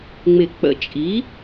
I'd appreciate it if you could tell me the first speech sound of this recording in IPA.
ŋ͡m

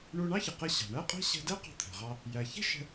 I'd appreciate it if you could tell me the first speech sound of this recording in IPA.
ɳ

